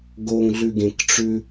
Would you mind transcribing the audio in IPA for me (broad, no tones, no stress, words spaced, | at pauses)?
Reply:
ɡoŋɮʉɡẽkʈ͡ʂʉ